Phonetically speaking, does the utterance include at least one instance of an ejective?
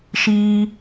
no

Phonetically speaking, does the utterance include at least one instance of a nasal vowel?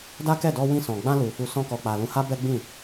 yes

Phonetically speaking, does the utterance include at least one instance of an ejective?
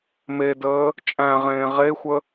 yes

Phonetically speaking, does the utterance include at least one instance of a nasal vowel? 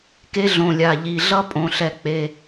yes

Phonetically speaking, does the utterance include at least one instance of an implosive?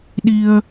yes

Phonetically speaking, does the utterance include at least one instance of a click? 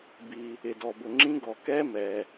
yes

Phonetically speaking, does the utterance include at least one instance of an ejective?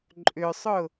yes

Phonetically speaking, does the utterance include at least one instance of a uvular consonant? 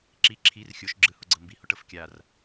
no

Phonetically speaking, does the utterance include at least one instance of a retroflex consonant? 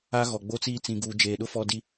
no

